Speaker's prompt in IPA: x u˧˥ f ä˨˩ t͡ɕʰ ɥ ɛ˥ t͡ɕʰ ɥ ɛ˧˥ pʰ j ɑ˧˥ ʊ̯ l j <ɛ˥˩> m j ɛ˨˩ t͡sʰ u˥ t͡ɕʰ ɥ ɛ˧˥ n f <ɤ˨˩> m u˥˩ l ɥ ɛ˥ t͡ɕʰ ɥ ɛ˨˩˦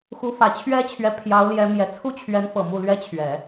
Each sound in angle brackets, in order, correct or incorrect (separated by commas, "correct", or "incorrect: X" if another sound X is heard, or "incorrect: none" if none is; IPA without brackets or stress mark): incorrect: ɛ˧˥, correct